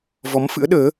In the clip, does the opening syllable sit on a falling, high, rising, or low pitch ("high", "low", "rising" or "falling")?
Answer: rising